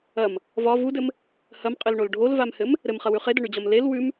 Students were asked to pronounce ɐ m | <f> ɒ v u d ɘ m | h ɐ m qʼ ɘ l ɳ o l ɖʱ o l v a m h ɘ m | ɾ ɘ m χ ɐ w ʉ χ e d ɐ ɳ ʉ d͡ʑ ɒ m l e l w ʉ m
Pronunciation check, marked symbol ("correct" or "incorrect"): incorrect